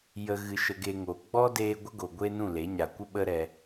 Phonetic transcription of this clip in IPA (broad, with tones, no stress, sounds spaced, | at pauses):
j ə˨ ɣ ɨ˧ ʃ ə˧ ɡ e˧ ŋ o˨ ɡ͡b ɔ˦ d eː˦ ɡʷ ə˦ ɡ o˨ ɡʷ e˦ n ũ˦˨ l e˨˦ ɲ a˧ kʷ ə˦ ɓ ə˦ ɾ ɛ˧